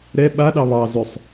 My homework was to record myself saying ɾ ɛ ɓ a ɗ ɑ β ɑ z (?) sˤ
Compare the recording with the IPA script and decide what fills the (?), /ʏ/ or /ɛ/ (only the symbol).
ʏ